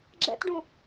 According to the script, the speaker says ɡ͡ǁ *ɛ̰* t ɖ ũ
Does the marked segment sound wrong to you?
no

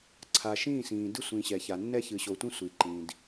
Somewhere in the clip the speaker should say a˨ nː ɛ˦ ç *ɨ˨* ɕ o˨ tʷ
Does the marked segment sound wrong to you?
no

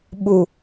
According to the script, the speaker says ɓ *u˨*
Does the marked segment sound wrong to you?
no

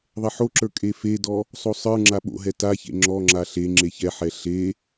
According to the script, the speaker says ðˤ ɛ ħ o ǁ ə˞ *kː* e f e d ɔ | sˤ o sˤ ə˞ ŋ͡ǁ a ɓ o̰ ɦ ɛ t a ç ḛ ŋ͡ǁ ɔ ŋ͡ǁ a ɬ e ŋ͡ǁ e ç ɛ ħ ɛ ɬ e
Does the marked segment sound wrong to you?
yes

